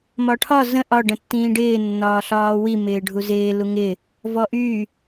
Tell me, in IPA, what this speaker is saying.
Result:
mɒʈʰɒ zə̃ ʔɒ ɖə̃tːĩːɖɪː nːɒːɬɒːwi mɪːɖʱuzɪː luŋɪ | vɔʔy

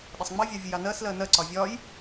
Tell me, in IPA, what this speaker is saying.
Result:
ɗɪsˤŋ͡mɑvʲɑ vʲəjɑnɜs lɜnɜǀɒ vʲɒj

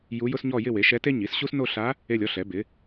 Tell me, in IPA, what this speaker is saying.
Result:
ju˧˥jʊ˥sɲɔ˥˧ jɪ˥˧we˩˥ʃɛ˧˥te˥ ɲi˩˥sɕu˥s no˥˧ɬa˧˥ | e˥˧lʲɔ˥ɬɛ˩˥bɪ˩˥

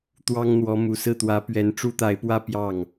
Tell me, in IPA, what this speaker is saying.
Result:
t̪wɑ˥ŋn̪wɔ˧˥ mu˨˩sɹ̩˥˩t̪wä˧˥ pɥɛ˧˥nʈ͡ʂu˥t̪a˧˥ɪ̯pwä˥˧ pjɑ˥˩ŋ

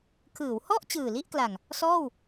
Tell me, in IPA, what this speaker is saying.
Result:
kʰɯː˩˦whɔ˥˩ʔ t͡ɕɯː˨˩li˥˩ʔkla˨˩ŋ | sɔː˥˩w

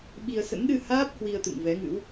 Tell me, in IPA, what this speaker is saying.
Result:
ɓi˧ə̯ sə̰˧˥nɗɨ˧haː˦˥p̚ hwi˧ə̯t̪ɨ̰˧˨ŋvɛ˨˦ŋɨ̰˧˥w

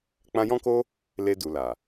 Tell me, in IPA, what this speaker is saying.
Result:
k͡pã˧jɔ̃˦ko˦ | le˧du˨la˨

